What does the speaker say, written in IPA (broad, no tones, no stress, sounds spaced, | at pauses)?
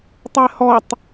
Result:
tˤ ɛ h ɔ tˤ